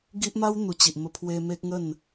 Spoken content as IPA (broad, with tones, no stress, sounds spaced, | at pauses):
ɡ i˦ ʔ m a˦ w n̪ u˨˩ t͡ɕ i˨ ʔ m ə˧ pʰ w e˧ m e˦ k̚ ŋ ə˥˧ n